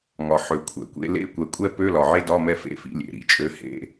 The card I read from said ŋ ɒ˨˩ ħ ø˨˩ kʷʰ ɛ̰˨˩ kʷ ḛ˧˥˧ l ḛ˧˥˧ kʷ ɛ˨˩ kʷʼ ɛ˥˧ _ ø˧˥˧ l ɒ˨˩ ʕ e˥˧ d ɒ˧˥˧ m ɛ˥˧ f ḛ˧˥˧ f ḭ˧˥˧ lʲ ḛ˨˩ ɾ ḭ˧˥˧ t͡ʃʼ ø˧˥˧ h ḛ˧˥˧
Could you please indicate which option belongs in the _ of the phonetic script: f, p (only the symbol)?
p